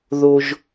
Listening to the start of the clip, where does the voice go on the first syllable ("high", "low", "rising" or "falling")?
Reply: high